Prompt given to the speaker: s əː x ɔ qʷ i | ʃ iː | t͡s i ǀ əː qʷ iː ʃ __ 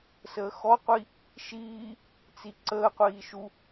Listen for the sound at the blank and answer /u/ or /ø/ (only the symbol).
u